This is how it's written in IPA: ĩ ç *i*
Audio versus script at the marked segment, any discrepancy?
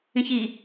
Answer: no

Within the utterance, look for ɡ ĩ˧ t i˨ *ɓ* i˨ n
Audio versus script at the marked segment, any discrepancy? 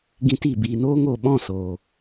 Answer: yes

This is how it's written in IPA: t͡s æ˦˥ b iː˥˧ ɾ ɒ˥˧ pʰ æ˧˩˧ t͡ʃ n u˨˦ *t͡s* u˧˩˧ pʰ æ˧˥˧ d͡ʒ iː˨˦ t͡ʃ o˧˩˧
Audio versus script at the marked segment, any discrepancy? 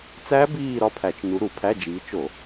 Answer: yes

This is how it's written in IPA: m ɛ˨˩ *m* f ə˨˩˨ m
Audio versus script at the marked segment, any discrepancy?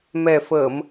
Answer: yes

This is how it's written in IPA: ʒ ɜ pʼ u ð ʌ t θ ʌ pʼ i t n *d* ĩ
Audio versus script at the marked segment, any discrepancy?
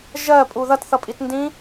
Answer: no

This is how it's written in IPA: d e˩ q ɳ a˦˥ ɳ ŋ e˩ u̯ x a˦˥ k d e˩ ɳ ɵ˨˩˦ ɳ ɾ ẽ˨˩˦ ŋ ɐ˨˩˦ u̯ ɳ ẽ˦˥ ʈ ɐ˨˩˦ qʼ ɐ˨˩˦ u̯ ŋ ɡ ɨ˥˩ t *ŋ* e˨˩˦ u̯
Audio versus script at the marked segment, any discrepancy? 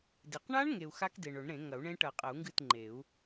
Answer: yes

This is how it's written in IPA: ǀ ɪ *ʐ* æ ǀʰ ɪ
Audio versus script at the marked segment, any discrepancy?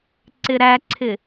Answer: yes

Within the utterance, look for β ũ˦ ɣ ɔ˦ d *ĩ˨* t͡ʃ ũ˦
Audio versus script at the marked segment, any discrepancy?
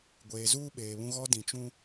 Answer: no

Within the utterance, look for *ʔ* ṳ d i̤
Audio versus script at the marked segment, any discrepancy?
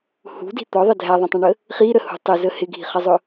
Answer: yes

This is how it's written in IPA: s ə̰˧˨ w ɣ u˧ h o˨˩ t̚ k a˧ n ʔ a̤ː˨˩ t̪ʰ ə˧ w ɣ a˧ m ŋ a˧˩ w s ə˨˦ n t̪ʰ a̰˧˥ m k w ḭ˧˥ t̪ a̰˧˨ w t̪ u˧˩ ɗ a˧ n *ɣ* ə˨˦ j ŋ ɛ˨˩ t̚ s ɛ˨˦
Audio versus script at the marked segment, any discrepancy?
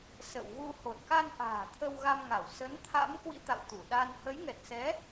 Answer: yes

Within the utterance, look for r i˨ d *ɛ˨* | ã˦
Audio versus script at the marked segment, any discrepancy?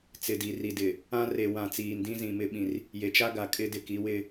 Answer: yes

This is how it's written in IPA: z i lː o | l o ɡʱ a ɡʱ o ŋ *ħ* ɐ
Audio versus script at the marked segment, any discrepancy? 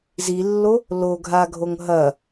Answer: yes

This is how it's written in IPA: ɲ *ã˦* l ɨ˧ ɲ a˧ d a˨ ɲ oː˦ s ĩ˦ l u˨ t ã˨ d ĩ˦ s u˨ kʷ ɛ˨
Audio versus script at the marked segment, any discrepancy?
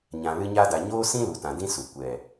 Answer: yes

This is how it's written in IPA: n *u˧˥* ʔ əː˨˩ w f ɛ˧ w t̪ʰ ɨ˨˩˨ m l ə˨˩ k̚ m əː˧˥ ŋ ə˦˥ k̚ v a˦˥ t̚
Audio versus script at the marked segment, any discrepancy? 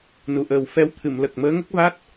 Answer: yes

